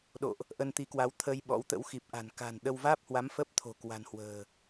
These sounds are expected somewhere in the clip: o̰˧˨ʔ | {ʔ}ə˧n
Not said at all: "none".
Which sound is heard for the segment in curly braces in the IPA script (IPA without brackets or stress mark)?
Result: ʔ